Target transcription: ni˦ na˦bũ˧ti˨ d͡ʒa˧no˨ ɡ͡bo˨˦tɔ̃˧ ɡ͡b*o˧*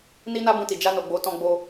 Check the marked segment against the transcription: correct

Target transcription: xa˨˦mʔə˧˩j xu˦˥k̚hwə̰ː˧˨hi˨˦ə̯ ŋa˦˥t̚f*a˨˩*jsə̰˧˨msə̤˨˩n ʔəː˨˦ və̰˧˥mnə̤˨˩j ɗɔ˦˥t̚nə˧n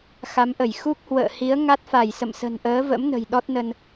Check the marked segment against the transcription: incorrect: a˧˩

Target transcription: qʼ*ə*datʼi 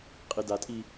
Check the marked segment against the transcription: incorrect: ɪ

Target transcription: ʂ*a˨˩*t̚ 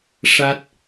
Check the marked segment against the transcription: incorrect: a˦˥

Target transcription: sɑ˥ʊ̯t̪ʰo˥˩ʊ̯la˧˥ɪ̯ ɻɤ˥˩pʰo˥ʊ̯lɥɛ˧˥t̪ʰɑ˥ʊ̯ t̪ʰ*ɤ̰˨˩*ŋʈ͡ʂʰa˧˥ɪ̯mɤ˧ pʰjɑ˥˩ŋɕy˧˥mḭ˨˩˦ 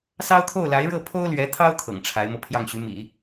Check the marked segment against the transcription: correct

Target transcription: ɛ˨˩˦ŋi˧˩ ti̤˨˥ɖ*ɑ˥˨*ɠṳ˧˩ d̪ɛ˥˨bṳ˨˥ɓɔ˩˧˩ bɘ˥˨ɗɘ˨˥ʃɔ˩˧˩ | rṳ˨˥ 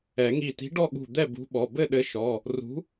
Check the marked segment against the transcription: incorrect: ɔ˥˨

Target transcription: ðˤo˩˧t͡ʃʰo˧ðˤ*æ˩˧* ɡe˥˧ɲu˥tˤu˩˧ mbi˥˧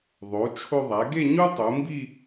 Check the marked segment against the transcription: correct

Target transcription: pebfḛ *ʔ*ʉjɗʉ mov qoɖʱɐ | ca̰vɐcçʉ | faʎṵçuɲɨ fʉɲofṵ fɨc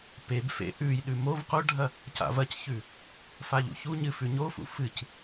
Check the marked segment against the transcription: correct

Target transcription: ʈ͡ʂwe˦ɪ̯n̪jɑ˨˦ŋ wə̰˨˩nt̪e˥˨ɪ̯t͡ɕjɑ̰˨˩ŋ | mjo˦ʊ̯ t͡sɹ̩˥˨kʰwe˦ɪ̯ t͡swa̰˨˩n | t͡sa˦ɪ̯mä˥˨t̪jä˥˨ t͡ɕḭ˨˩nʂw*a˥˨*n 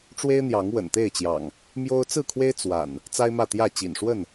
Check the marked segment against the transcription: incorrect: ə˥˨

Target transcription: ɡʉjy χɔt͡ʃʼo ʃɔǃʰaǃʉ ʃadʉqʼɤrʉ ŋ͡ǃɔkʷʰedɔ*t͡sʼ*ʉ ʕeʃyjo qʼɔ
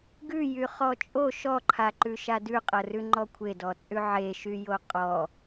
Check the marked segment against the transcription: correct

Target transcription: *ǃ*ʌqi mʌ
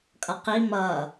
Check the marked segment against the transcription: incorrect: kʼ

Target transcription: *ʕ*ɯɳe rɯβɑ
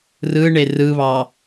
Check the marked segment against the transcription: incorrect: r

